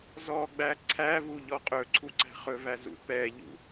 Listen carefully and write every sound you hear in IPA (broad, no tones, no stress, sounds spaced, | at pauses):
z ɔ ɡ͡b æ ǀʰ æ v u ʎ ɔ qʼ ɵ ǀʰ u ǀ æ̤ χ ɵ v æ z ṵ p ɛ ʎ ṵ